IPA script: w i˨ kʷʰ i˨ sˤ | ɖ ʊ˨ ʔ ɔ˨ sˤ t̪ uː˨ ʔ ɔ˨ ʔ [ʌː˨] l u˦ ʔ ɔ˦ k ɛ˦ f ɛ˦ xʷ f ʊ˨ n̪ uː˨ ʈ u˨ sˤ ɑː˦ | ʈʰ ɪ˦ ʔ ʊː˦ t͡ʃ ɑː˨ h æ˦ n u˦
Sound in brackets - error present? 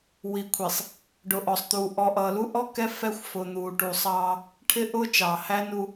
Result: no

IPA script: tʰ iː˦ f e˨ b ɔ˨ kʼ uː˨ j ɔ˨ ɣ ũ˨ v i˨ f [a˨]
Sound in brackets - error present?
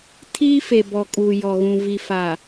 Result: no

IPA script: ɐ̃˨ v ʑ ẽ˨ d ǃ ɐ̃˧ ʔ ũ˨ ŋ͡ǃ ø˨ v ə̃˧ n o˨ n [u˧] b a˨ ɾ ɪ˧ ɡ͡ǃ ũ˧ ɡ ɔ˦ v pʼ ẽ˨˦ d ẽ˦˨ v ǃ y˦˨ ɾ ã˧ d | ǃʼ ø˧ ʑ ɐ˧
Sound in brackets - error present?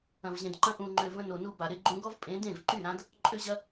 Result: no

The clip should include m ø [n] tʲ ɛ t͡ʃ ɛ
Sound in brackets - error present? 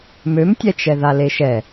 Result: yes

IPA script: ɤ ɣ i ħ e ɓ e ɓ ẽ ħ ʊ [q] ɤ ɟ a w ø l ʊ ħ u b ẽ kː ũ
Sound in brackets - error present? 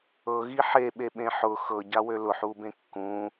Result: yes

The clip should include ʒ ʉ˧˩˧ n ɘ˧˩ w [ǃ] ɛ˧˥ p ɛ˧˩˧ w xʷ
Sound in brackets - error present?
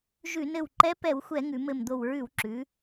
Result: no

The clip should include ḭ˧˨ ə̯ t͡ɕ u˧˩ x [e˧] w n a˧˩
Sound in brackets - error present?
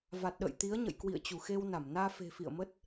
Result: no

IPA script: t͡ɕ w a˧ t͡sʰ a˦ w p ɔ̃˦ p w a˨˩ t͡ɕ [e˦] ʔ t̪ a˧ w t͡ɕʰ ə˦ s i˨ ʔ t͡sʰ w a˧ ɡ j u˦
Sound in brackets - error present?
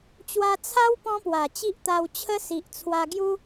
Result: yes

